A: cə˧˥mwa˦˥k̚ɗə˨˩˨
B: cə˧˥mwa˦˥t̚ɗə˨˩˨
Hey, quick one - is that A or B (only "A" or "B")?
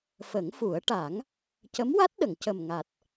B